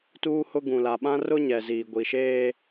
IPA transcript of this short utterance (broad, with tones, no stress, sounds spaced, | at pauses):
t uː˦ h ʊ˦ ɡ ũ˨ l a˨ ɓ ã˦ r ʊ˦ ɲ ɛ˨ z iː˨ ɡʷ i˨ ʃ eː˦